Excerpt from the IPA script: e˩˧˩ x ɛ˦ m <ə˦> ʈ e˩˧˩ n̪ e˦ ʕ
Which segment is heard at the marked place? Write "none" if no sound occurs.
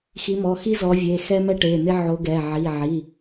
ɛ˦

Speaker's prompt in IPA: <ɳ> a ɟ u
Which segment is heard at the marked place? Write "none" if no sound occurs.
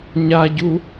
ɲ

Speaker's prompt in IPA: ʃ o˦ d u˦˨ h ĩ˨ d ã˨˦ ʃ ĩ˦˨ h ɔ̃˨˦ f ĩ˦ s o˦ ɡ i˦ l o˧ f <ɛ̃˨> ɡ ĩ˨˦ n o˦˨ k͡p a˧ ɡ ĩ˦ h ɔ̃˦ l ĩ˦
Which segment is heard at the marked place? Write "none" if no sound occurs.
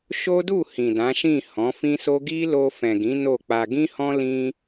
ɛ̃˨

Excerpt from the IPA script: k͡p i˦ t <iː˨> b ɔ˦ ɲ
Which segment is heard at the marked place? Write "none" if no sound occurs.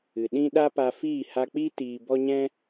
iː˧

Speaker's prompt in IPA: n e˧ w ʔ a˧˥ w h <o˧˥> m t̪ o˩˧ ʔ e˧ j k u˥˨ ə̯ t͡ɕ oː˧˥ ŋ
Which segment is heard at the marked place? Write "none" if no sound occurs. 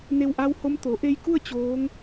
o˧˥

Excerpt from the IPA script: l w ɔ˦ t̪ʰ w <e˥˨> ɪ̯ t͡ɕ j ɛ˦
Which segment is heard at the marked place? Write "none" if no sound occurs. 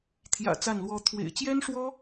ḛ˨˩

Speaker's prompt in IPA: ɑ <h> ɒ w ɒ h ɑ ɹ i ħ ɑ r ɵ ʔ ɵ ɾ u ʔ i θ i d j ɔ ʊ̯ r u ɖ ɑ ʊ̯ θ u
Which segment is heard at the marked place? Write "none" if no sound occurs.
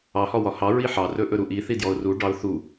h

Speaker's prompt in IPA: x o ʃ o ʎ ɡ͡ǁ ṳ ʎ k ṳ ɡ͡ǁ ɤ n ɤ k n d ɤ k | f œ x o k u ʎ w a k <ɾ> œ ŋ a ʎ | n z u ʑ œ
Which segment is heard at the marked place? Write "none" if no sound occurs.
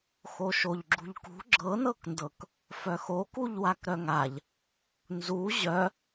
ɾ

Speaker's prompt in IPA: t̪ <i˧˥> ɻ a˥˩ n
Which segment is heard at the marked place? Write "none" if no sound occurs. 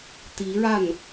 i˧˥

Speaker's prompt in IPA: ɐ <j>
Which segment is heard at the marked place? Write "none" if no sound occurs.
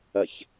ç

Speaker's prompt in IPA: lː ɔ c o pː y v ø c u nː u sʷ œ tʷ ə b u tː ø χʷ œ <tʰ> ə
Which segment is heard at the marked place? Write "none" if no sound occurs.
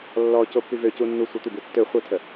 tʰ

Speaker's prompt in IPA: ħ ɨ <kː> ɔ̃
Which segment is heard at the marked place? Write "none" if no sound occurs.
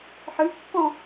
kː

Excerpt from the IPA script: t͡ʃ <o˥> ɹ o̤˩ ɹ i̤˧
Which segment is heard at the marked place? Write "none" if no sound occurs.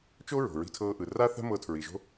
o˥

